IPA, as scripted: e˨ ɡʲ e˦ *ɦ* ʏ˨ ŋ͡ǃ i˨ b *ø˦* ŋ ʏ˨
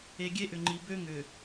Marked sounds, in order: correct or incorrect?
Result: incorrect, correct

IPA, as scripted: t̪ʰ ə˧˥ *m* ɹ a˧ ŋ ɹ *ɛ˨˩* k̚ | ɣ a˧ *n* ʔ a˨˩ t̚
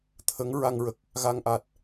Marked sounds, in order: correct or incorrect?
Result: incorrect, incorrect, incorrect

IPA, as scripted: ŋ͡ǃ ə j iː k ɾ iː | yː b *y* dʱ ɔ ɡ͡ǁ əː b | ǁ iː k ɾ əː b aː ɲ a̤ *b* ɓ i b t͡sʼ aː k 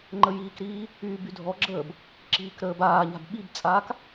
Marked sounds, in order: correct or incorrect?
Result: correct, correct

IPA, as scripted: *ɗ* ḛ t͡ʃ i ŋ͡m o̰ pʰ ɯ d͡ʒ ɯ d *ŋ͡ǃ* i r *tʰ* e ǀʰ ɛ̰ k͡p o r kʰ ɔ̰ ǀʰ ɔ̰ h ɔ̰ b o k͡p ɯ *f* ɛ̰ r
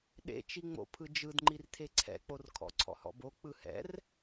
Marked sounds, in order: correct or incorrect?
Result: correct, correct, correct, incorrect

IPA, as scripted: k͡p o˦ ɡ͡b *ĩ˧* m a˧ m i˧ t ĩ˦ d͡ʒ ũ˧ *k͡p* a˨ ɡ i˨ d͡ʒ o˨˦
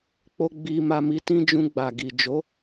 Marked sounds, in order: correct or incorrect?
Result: incorrect, incorrect

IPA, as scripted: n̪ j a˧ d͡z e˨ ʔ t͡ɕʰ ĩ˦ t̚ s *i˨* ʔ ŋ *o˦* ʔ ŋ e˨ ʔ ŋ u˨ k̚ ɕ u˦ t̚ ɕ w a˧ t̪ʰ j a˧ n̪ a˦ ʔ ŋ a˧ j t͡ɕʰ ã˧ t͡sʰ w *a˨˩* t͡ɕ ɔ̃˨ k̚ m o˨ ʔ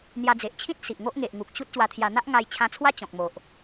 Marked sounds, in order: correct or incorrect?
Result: correct, correct, incorrect

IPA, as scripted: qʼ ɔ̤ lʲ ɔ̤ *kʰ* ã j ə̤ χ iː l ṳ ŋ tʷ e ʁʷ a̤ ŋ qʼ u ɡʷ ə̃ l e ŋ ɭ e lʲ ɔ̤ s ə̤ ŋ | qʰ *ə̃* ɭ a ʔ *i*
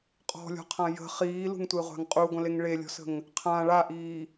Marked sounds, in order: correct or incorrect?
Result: incorrect, incorrect, incorrect

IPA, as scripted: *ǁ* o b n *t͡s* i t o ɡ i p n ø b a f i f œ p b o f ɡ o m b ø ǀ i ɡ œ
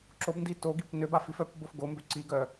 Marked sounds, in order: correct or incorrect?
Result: correct, incorrect

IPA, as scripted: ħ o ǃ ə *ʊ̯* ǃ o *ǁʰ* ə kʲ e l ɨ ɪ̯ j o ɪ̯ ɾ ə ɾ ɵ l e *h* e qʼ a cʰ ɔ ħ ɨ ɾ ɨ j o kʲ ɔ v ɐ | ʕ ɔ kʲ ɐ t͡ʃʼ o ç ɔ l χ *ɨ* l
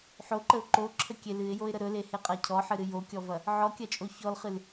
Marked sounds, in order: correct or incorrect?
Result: correct, correct, correct, correct

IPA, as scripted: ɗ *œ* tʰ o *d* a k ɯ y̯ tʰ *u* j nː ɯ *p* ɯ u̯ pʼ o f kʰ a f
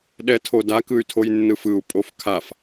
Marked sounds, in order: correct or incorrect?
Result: incorrect, correct, incorrect, incorrect

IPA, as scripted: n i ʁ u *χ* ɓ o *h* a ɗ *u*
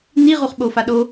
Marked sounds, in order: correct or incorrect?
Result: correct, incorrect, incorrect

